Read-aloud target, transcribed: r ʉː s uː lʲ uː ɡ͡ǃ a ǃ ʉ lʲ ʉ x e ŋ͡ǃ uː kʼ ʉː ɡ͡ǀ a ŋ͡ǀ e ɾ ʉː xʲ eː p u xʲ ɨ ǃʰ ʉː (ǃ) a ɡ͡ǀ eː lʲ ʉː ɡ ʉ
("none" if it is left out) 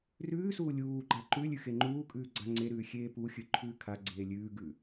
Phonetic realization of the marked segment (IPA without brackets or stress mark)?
kʰ